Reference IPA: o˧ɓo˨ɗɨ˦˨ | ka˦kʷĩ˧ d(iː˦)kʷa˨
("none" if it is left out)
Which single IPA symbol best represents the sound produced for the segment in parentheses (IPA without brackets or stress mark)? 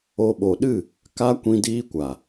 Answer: iː˦